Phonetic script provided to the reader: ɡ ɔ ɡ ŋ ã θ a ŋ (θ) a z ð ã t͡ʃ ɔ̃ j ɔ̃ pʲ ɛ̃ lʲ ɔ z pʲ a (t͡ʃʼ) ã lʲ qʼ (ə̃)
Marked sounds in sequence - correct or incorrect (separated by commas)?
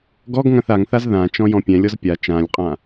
correct, incorrect, incorrect